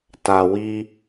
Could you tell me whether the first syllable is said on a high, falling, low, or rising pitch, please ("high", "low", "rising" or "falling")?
low